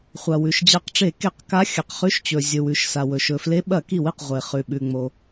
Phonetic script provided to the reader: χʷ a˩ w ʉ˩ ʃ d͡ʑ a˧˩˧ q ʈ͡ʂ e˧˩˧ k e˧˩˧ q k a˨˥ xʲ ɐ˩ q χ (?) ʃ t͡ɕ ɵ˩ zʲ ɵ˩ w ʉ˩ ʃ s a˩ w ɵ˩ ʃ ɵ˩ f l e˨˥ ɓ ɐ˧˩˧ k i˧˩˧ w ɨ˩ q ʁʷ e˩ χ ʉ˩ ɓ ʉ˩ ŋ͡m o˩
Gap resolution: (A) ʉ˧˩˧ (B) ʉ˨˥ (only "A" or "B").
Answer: B